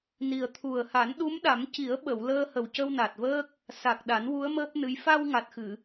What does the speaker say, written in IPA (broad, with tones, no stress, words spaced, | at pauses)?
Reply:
ni˨˩ə̯ t̪ʰu˨˩ə̯ha˨˩˦n ɗu˧˥mɗa˨˩˦mci˨˩˦ə̯ɓə˨˩˨w ləː˧hə˨˩wcə˧w na˨˩t̚vəː˦˥k̚ | sa˨˩k̚ ɗa˨˩˦nwu˧˥ə̯ məː˦˥p̚nɨ˧˥j fa˧wŋa˨˩t̚xɨ˨˩˨